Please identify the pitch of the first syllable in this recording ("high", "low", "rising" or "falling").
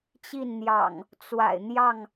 falling